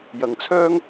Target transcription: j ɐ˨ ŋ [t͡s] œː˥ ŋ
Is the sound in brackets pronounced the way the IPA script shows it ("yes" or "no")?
no